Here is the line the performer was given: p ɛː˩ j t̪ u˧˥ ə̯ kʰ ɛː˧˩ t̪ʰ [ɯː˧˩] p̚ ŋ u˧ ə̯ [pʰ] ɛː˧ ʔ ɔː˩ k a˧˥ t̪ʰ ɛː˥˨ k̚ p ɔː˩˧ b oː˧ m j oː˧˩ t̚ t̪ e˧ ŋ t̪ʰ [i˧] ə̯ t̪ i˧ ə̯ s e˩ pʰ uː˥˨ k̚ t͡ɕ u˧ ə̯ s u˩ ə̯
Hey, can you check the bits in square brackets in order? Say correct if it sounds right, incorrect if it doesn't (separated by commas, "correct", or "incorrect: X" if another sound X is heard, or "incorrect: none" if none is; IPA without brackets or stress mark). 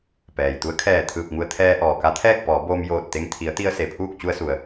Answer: correct, incorrect: t̪ʰ, incorrect: i˩˧